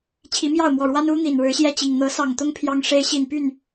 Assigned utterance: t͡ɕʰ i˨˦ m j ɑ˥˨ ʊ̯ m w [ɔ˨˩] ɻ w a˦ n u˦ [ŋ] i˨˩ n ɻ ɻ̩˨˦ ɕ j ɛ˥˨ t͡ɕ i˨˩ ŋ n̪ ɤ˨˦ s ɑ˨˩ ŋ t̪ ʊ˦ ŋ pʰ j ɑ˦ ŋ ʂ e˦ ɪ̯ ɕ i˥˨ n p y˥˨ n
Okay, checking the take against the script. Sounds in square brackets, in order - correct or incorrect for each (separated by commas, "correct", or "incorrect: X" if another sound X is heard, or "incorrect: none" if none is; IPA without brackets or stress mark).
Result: correct, incorrect: n̪